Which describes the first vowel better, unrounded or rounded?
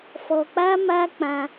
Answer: rounded